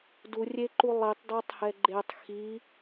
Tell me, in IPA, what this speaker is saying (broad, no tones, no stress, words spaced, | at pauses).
durʲeǃu lˠitˤdɔtˤhɛ ɡ͡ǃetˤ xi